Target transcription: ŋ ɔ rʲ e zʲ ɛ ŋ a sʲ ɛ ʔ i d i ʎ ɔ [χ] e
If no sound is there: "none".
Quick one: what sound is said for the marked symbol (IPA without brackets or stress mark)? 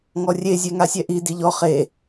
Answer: χ